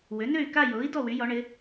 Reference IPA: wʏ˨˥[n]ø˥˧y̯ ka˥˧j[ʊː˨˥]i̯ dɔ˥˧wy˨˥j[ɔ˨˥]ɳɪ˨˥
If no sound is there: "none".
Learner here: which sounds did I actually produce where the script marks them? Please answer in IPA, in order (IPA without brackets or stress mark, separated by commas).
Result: n, ʊː˨˥, ɔ˨˥